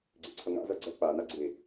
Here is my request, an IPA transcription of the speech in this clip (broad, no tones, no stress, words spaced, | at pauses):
ɡ͡ǀḛǀʰʌŋa̰zʌ ɡ͡ǀʌ k͡pana ɡ͡ǀe